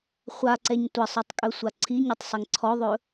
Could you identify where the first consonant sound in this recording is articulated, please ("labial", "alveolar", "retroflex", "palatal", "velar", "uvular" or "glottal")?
uvular